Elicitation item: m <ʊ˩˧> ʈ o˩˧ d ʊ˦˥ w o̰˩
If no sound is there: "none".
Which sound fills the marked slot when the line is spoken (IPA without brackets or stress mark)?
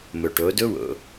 ʊ˩